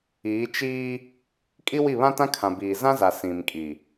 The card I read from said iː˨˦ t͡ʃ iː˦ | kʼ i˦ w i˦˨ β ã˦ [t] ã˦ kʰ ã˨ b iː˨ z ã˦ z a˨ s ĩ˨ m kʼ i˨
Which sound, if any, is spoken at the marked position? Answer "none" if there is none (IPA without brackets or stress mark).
t